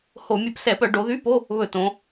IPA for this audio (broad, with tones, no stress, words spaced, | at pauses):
ho˧˩˧ mʲɵ˧˩˧psɛ˧˩˧pœ˧˩˧ ɖo˩˧ðy˧˥˧po˧˥˧ | βɵ˧˩˧ tõ˩˧